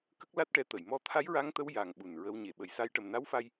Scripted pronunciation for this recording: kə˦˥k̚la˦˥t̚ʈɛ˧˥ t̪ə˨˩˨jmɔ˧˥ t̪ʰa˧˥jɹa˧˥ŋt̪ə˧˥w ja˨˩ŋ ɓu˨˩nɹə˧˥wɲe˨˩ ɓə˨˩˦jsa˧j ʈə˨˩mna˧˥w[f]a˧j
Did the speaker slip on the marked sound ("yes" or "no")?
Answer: no